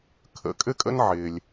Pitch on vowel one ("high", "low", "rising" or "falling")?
low